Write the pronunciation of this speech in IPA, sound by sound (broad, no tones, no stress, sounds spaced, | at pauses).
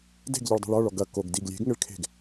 d e̤ ɡ ʎ ɨ ɭ dˤ ṳ ɭ ɔ ɭ ɔ ɡ ɐ k o ɡ d i ɡ lʲ e̤ ɡ ŋ ɘ ɭ kʰ e̤ ɡ